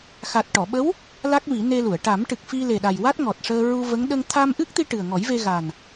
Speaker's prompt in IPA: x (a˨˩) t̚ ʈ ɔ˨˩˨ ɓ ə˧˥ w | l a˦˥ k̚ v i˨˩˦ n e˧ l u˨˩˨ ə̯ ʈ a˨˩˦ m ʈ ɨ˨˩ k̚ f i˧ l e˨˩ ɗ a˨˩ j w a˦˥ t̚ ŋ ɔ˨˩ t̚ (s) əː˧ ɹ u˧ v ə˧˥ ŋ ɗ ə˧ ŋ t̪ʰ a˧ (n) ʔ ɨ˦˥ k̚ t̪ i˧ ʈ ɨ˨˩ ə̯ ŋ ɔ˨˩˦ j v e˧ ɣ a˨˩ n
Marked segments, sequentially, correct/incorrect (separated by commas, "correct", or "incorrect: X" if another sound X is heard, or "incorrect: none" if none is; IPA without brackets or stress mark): correct, incorrect: ʂ, incorrect: m